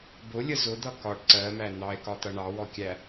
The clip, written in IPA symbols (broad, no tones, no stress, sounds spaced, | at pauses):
b ʊ lʲ ə z ʊ d̪ ʌ k ɒ ɖ ǀ ɜ m æ n̪ ɑ e̯ k ɒ t̪ ʌ ɳ ɑ w ɔ kʲ æ